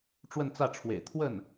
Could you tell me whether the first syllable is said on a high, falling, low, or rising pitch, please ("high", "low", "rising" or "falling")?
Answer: falling